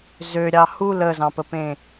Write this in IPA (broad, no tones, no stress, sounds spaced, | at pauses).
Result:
z ø ɾʲ ɑ h u l ə z ɑ̃ p ə p ẽ